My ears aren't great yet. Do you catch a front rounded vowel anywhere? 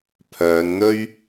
yes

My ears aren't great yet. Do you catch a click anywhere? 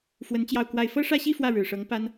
no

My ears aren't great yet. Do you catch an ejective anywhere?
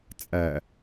yes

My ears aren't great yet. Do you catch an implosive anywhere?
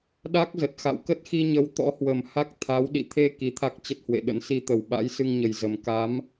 yes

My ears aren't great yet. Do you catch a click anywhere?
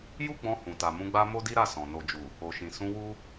no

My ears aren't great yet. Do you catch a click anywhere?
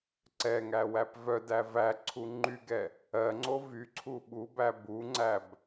yes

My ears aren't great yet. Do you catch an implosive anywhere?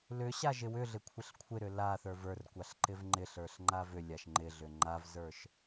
no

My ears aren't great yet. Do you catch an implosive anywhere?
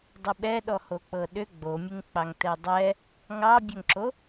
yes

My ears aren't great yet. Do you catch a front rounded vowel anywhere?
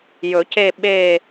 no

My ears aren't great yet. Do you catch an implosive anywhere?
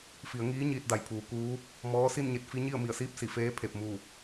no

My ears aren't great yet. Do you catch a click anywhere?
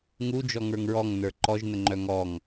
yes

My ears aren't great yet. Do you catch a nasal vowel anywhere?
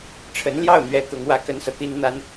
no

